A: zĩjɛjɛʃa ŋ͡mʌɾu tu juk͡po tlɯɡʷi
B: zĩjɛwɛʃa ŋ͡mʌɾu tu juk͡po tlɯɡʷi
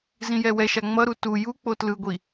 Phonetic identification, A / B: B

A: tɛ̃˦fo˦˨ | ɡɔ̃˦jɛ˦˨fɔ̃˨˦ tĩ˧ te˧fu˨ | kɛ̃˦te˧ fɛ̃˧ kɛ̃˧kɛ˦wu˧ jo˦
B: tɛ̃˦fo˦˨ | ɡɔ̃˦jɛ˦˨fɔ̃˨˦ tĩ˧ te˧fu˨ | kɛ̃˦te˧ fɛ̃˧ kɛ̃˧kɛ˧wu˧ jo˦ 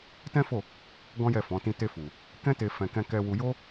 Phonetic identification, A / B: B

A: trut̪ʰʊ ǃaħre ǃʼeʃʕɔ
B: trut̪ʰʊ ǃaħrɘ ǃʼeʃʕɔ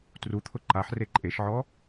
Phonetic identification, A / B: A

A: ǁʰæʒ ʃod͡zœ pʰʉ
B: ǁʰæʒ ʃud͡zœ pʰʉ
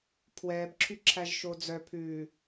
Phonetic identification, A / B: A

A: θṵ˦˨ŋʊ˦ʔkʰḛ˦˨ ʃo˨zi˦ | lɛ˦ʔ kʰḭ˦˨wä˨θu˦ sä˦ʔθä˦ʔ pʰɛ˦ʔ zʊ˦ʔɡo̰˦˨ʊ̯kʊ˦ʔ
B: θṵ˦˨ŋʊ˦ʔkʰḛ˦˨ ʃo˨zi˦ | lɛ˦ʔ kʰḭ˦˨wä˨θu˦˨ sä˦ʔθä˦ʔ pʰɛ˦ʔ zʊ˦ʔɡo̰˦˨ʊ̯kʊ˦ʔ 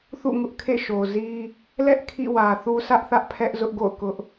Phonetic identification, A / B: A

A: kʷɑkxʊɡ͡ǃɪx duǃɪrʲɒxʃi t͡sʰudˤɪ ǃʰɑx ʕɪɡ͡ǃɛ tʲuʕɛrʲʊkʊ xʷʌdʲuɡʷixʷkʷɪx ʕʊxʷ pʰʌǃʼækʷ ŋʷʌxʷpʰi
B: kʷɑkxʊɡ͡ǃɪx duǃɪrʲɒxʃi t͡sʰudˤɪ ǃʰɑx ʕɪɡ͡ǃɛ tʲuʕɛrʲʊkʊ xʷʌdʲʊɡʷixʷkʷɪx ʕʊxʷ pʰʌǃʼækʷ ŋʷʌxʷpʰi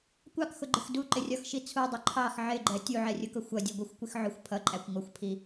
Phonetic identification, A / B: A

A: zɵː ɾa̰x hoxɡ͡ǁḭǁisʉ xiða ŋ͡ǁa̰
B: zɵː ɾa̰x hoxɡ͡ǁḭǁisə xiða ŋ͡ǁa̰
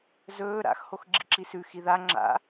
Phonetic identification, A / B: A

